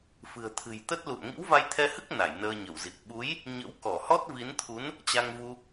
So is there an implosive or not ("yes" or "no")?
yes